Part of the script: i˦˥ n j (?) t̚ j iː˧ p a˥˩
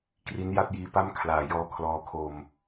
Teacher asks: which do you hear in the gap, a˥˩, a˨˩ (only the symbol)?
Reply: a˥˩